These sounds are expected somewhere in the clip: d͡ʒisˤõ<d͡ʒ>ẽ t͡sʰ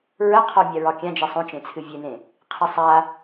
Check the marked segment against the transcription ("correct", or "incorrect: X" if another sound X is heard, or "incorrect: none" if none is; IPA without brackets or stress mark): incorrect: t͡ʃ